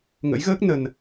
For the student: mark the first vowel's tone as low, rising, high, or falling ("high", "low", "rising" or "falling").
rising